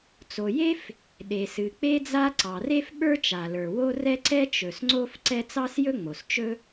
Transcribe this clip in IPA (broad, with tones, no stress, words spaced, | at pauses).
t͡so˩je˥f | ɗe˩sɨ˩k͡pe˥d͡za˥ ǀɑ˩re˥fɓə˞˥t͡ʃa˩ lə˞˩wo˥ rɛ˥ǀɛ˥ t͡ʃɵ˩sŋ͡ǀo˥f ǀɛ˥ t͡sɑ˥sjɵ˥ŋ͡mo˩s t͡ʃɵ˥